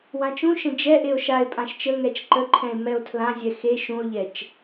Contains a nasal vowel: yes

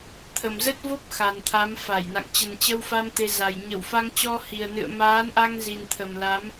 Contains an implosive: no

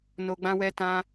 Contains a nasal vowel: yes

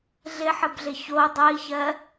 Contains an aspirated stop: no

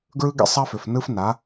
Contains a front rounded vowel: yes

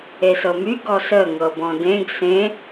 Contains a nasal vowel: yes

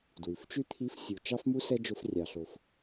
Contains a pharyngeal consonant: no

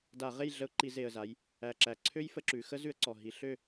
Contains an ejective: no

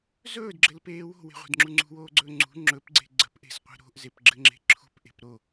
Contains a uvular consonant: yes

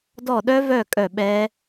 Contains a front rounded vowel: yes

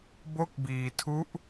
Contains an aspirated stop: yes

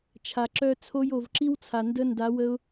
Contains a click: yes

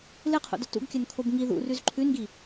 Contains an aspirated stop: yes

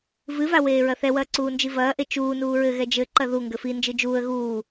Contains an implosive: no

